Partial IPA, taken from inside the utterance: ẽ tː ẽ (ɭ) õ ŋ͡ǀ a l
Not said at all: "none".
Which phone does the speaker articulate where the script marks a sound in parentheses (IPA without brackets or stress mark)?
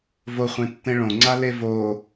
ɭ